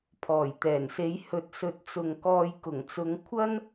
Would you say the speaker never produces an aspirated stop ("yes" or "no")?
no